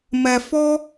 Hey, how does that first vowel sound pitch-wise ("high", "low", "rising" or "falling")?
low